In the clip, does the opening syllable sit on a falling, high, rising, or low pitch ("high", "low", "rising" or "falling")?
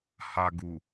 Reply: low